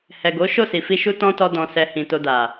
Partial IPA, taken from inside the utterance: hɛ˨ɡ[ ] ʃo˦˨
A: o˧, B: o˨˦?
B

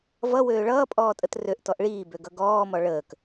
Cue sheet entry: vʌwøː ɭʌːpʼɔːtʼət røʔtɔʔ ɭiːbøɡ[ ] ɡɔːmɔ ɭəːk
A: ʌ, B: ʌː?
A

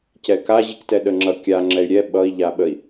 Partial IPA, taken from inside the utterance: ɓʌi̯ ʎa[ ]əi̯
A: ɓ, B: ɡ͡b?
A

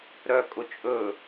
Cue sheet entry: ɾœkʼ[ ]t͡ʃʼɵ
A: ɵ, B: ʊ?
B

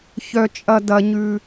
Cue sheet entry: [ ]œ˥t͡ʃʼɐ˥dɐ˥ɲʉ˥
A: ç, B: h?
A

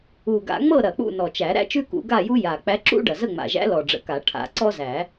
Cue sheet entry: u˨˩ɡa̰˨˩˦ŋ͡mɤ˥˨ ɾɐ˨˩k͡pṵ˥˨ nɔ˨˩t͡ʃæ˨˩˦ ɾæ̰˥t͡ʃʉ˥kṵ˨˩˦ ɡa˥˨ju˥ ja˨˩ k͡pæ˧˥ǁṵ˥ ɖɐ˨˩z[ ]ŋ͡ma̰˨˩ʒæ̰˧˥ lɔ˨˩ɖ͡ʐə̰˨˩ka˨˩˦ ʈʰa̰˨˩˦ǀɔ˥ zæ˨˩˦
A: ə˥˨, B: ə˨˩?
A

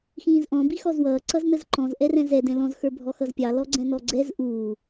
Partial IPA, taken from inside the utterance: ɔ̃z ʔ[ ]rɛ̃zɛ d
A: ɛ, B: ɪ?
A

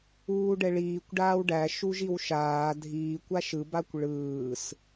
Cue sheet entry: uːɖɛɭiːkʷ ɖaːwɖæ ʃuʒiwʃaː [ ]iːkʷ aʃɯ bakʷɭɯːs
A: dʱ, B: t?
A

